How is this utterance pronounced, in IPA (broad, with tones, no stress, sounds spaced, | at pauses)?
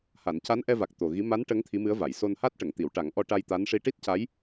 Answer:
h a˨˩˨ n c a˧˥ n ʔ ɛ˧ v a˨˩ k̚ t̪ o˨˩ ɣ i˧˥ m a˧˥ n ʈ ə˧˥ ŋ t̪ʰ i˧˥ m ɨ˧˥ ə̯ v a˨˩˨ j s o˧ n h a˦˥ t̚ ʈ ə˨˩˨ ŋ t̪ i˨˩˨ w ʈ a˨˩˦ ŋ ʔ ɔ˧ ʈ a˧ j t̪ a˧˥ n ʂ i˧˥ ʈ i˦˥ t̚ c a˧˥ j